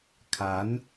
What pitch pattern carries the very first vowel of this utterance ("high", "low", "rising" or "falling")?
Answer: rising